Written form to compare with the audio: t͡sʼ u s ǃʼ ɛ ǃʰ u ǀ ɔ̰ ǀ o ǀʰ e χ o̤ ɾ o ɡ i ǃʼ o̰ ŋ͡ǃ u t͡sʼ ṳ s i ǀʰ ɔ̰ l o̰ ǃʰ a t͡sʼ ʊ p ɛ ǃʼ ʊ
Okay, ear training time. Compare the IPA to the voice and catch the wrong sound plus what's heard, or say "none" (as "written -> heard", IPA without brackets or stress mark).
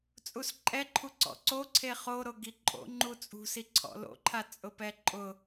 o̤ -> o